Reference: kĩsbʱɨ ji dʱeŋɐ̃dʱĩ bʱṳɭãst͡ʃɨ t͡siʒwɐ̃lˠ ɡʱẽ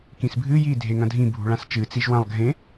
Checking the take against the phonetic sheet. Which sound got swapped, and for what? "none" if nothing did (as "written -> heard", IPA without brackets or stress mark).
none